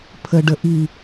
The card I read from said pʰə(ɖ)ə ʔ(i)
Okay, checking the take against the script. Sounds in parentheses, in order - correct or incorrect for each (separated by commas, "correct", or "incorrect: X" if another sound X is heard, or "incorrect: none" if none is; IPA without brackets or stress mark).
correct, correct